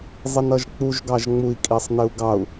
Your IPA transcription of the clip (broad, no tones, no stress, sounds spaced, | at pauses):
zˤ i n ʌ ʒ k͡p u ʒ ɡ ɑ ʒ ŋ͡m u i̯ kʼ i sˤ n ɪ u̯ ɡ ɑ u̯